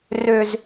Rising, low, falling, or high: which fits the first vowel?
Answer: low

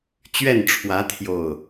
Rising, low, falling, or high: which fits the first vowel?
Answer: falling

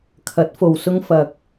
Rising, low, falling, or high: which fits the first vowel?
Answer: rising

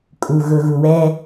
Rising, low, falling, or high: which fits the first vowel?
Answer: low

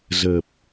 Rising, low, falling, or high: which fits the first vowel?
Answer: low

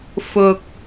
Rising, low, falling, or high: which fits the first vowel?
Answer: low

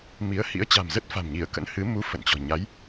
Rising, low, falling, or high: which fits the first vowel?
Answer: rising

